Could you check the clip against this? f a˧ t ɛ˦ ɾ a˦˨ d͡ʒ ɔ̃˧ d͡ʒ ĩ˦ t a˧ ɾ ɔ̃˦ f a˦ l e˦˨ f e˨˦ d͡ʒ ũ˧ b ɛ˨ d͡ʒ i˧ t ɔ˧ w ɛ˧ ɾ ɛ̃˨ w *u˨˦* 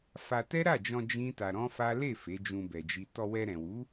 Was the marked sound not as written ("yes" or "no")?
no